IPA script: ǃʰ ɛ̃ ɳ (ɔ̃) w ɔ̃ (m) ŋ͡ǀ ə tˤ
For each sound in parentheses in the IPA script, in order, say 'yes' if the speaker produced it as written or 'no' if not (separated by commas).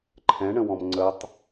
no, yes